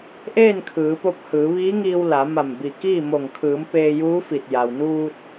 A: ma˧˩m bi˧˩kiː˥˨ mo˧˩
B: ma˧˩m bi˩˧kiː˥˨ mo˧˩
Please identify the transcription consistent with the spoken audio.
A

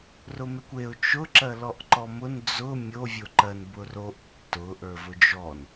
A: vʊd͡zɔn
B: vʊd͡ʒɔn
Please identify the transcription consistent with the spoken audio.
B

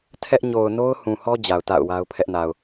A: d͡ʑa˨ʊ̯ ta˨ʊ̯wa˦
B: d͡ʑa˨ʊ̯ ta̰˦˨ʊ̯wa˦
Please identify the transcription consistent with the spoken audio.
B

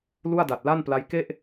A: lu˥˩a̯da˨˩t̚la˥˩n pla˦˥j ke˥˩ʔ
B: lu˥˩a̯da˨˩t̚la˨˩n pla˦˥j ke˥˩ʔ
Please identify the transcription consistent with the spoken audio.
A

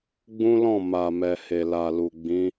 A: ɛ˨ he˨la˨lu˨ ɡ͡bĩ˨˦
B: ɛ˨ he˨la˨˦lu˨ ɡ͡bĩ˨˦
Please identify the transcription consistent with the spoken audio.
A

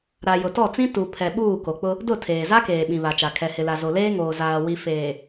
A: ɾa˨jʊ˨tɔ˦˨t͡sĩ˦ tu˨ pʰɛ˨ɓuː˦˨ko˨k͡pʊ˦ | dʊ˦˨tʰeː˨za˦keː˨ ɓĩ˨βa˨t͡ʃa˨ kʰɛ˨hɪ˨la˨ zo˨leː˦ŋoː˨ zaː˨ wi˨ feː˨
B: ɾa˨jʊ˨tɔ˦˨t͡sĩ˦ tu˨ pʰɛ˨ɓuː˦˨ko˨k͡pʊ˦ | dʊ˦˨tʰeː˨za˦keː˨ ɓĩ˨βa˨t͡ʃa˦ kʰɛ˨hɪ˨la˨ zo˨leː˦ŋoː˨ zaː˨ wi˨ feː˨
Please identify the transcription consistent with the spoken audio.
A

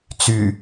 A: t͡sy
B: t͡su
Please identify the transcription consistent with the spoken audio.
A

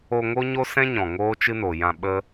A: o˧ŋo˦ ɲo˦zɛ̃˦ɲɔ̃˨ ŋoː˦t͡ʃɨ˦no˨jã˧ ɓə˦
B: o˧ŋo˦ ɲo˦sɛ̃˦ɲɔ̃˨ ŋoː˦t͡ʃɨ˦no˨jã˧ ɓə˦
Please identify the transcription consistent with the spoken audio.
B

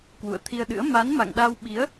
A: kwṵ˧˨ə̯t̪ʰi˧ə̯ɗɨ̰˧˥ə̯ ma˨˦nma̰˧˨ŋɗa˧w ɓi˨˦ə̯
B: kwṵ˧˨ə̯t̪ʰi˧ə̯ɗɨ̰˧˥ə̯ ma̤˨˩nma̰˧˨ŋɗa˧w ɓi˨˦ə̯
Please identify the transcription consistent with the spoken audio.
A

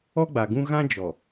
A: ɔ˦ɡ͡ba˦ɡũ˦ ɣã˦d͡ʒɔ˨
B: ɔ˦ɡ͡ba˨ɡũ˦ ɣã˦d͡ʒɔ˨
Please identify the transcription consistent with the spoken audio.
B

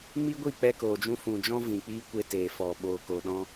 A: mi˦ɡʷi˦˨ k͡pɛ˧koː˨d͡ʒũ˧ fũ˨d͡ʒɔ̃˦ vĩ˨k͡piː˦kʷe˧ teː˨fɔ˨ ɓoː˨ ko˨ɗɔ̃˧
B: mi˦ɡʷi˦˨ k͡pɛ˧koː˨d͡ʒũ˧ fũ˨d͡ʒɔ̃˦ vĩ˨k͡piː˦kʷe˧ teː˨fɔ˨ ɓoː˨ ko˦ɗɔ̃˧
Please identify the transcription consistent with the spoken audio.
A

